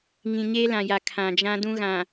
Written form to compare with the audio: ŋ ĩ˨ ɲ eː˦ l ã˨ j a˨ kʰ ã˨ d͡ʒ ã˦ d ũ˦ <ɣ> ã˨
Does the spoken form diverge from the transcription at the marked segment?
no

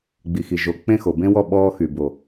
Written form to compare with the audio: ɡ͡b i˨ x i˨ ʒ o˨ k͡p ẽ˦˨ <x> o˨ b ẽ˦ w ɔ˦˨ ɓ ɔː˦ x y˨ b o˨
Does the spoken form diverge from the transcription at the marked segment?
no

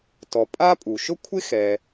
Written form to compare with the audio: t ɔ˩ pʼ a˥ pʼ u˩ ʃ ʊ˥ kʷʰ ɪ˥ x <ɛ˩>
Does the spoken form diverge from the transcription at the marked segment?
no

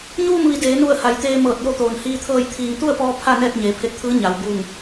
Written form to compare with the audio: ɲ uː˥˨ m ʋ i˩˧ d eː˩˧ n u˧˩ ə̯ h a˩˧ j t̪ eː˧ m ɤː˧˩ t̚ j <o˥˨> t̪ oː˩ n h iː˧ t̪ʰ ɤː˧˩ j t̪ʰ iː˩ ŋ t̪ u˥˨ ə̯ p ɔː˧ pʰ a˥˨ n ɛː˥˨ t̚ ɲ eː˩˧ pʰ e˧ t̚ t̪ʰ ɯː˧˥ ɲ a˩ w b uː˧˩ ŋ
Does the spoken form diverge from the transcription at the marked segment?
no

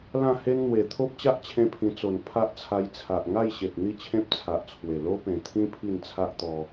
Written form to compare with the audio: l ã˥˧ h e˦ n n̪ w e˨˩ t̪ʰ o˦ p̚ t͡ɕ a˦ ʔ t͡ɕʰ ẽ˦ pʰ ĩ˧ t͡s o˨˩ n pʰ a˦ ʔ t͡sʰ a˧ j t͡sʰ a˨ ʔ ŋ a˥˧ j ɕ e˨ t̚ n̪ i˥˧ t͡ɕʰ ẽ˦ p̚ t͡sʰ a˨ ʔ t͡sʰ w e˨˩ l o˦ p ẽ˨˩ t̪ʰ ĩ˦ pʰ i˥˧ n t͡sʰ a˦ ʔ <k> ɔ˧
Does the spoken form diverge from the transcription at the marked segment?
yes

